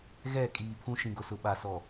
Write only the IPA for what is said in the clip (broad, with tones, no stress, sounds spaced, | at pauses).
ɣ ɛ˦˨ kʼ iː˨ pʰ ũ˦ ʃ ĩ˨ ɡ ʊ˨ s ʊ˨ ɓ a˨ s ɔ˨